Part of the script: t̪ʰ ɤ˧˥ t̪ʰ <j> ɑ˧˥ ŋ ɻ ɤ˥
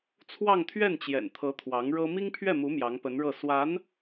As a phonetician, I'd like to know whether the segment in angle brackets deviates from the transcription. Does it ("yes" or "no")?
yes